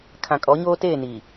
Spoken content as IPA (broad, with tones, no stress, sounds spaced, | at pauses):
kʰ ã˨ kʼ ɔ˨˦ ɲ oː˦ t eː˦˨ n iː˨